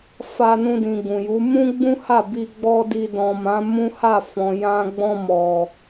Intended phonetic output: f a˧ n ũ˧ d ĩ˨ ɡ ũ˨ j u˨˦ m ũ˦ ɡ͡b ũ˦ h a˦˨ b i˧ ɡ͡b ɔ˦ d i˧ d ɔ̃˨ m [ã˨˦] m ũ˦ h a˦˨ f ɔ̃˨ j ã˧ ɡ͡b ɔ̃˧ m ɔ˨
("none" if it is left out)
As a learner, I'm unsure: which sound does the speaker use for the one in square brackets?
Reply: ã˨˦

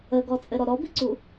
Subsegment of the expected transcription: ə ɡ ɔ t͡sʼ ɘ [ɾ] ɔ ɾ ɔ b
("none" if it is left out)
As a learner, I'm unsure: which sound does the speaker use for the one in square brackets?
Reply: ɾ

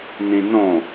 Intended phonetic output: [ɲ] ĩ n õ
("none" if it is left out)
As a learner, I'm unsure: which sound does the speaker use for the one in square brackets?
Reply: n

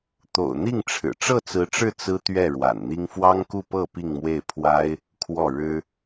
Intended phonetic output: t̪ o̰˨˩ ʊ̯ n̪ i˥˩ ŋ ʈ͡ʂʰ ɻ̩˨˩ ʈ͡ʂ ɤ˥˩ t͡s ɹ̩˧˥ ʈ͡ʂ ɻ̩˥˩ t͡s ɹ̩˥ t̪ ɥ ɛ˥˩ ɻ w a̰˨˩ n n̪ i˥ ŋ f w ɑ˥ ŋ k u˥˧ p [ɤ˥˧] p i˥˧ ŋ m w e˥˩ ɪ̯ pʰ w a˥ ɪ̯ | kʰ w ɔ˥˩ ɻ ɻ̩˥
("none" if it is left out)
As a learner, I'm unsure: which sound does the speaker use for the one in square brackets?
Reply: ɤ˥˧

